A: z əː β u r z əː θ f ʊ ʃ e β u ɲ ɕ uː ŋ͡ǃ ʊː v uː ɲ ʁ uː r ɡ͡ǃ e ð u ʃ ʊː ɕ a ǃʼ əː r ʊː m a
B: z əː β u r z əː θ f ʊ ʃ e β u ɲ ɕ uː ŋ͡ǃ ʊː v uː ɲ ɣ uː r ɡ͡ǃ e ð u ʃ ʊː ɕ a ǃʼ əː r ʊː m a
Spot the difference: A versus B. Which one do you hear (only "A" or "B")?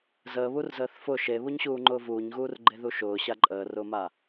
B